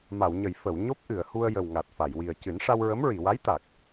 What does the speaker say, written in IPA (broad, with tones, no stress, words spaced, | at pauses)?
ma˨˩˨wɲə˨˩˨j fə˨˩˨w ɲo˦˥p̚ʔɨ˨˩˨ə̯hu˧ə̯ jə˨˩wŋa˨˩t̚fa˨˩˨jwi˨˩ə̯ cɨ˨˩˦nʂa˧wɹə˧˥m ɹi˨˩˨wa˧˥j t̪a˨˩k̚